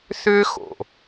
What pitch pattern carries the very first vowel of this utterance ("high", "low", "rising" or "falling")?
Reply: high